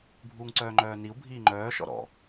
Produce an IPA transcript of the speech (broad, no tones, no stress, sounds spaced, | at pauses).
bʱ uː ŋ ǀ œː ŋ͡ǃ œː n i u̯ bʱ iː ŋ͡ǃ œː ʃ ɔ̰ ɾ ɔ̰